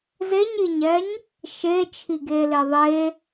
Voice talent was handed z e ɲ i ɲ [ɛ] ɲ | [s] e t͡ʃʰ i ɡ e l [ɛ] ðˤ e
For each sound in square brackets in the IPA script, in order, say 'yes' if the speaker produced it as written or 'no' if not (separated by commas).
yes, no, no